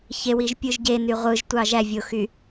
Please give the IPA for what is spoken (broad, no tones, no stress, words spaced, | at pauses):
çewiʒpʲɯʒ ɟeny ʁʷɯʒtʷɑ ʒævʲoxy